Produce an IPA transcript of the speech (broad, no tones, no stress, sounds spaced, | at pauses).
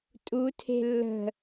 tʼ u tʰ e̤ lː ə̤